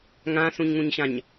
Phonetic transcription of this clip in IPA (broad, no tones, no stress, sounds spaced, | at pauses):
ŋ ã s ũ ɲ ŋ ũ ɲ ɕ ã ɲ